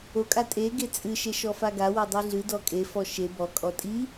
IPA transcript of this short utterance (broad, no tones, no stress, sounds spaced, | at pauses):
o kʼ a tʼ e ɡ e t͡sʼ ɨ ʃ e ʃ ɔ f a ɡ a w o dˤ i ɮ ɨ d ɔ kʼ e f ɔ ʃ e b ɔ kʼ ɔ tʼ i